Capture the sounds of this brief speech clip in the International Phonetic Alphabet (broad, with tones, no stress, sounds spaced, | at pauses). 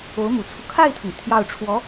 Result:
o˧˥ ʊ̯ m u˨˩ t͡sʰ u˦ kʰ a˥˩ ɪ̯ t̪ʰ ʊ˩ ŋ t̪ʰ j ɑ˥˩ ʊ̯ ʈ͡ʂʰ w ɔ˧˥